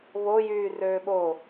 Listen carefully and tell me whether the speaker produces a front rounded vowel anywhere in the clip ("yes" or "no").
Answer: yes